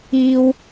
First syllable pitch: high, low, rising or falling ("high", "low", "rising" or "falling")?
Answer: high